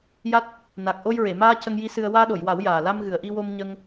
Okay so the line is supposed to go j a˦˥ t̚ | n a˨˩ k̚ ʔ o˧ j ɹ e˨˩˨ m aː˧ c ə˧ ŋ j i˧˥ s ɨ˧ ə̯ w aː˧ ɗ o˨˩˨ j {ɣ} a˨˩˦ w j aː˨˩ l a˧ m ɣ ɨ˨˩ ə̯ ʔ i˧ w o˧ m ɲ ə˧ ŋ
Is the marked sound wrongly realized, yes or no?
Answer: yes